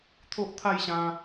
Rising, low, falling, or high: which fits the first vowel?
high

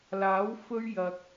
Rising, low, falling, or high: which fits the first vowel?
rising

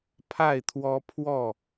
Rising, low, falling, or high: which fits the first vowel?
falling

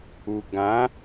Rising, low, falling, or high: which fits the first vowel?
low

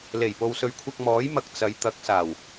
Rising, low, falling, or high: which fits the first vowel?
low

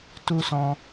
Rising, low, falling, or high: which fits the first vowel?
high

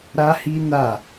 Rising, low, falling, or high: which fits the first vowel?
high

